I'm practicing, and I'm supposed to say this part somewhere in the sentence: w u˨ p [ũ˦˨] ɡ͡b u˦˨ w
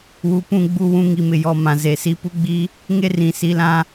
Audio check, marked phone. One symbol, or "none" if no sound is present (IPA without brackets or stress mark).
ũ˦˨